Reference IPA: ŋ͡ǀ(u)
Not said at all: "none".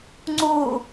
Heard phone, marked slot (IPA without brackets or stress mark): uː